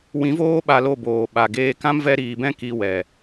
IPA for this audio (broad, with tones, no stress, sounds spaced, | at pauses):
w ĩ˨˦ v oː˦ ɓ a˧ l o˦˨ b oː˨ ɓ a˨ ɡ eː˦ k ã˦ m v ɛ˧ ɾ iː˨ b ɛ̃˦ k i˧ w ɛ˨